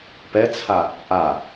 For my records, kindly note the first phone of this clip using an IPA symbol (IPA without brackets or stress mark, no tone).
p